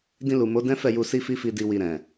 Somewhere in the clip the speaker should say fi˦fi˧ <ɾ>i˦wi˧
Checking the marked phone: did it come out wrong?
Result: yes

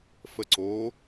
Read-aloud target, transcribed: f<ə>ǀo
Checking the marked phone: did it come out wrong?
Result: no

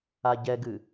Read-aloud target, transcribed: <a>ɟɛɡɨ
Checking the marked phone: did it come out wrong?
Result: no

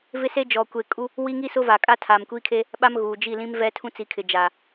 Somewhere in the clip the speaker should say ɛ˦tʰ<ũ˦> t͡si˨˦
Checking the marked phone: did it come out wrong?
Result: no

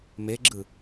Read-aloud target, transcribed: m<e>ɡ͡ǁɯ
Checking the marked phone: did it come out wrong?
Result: no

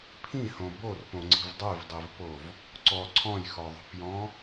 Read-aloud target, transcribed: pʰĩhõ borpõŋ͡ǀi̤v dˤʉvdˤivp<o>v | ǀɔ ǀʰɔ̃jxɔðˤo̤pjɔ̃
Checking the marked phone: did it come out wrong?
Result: no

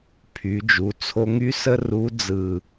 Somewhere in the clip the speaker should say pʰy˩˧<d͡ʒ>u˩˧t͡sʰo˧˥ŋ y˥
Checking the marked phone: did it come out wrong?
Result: no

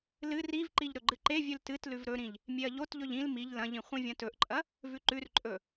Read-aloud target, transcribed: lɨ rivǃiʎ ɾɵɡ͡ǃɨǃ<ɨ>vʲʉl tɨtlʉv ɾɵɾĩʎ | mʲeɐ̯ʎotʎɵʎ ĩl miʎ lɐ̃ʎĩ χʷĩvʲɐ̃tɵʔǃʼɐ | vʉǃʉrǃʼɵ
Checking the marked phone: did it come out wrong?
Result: yes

